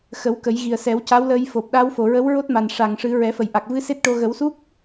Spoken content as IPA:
x ə˨˩˦ w k ə˨˩˦ j ɣ i˨˩ ə̯ s ɛ˨˩˦ w c a˧˥ w l əː˧ j f o˨˩ p̚ ɗ a˧˥ w f o˨˩ ɹ ə˧˥ w ɹ o˦˥ t̚ m a˨˩ n ʂ a˨˩ ŋ ʂ ɨ˨˩˦ ɹ ɛ˨˩˦ f ə˨˩ j ʔ a˨˩ k̚ v ɨ˧˥ s e˦˥ t̚ ʈ o˧ ɣ ə˨˩˦ w s u˦˥ k̚

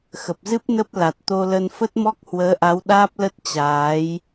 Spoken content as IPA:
x ə˨˩ p̚ z ɨ˦˥ p̚ n ə˦˥ p̚ l a˨˩ t̚ t̪ o˧ l ə˧ n f ə˦˥ t̚ m ɔ˦˥ k̚ h w əː˨˦ ʔ a˨˦ w ɗ aː˦˥ p̚ l ə˦˥ t̚ t͡ɕ aː˨˦ j

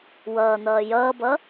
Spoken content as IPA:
w ʌː n̪ ʌː j ʌː b ʌ

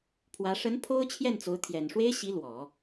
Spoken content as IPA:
pʰ w ä˧˥ ʂ ə˧˥ n pʰ o˥ ʊ̯ t͡ɕʰ j ɛ˥˩ n t͡s o˧˥ ʊ̯ t̪ʰ j ɛ˨˩ n ʂ w e˥ ɪ̯ ɕ i˧˥ l w ɔ˨˩˦

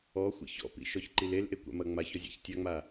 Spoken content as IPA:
ɔ xʷ ḭ ç ɔ̰ p ḭ ʃ ɔ ç ǃ i l e l ʔ e kʷ a̰ m ɐ ŋ͡m a ç ɔ zʲ a̰ ç tʲ a ŋ͡m a

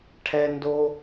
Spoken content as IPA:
ʈʰ ɛ˧ n d o˧

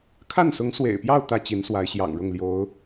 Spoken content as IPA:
kʰ a˥˩ n s ʊ˧˥ ŋ s w ḛ˨˩ ɪ̯ p j ɑ˥˧ ʊ̯ t̪ ä˥˩ t͡ɕ i˧˥ n s w a˧˥ ɪ̯ ɕ j ɑ̰˨˩ ŋ ɻ ʊ˥˩ ŋ l j o˧˥ ʊ̯

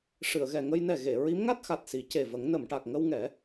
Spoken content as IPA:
ʂ ɨ˨˩˨ ə̯ ɣ ɛ˨˩ ŋ ə˧ j n ɛ˨˩ ɣ e˨˩˨ ɹ i˧˥ m ŋ a˦˥ t̚ x a˨˩ t̚ s i˨˩˦ c e˨˩ v ə˨˩˦ ŋ n ə˨˩˨ m ʈ a˨˩ k̚ ŋ ə˧ w ŋ ɛ˨˩˦

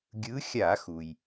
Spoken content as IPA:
ɡʲ ɯ˨˦ xʲ a˧˩˧ x u˩ j

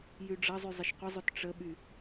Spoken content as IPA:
j y ɖ͡ʐ ɐ zˤ y zˤ ɪ ʃ qʷ ə zˤ ø t ʈ͡ʂ ə ɓ y

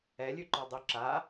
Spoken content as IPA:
ɛ lʲ ʉ ǃ ɔ dˤ ʉ ǁ a

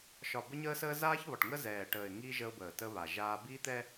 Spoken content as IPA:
ʃ ɒ˨ b ə˦ ɲ əː˦ s əː˦ z aː˦ ç β ɒ˨ ʈ ŋ ə˦ z ɛː˨ ʈ əː˨ ɪ̯ ŋ i˦ ʒ ə˦ ʊ̯ b əː˨ t ə˦ β a˨ ʒ aː˦ b iː˦ t̪ ɛ˦

